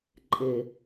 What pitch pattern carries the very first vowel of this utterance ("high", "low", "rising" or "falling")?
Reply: low